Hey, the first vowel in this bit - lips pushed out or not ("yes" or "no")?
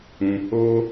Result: yes